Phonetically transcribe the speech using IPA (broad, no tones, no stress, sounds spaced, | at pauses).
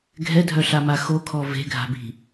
ɡʱ ɛ dʱ œ ɬ a m a x o kʰ ɔ v e̤ ɡʱ a̤ b i̤